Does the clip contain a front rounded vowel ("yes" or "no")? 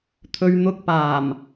no